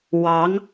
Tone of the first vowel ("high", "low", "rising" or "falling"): rising